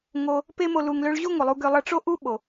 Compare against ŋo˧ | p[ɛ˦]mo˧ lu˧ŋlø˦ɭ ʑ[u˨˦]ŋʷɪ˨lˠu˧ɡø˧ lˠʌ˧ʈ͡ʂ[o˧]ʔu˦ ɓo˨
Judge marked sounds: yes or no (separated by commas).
no, no, no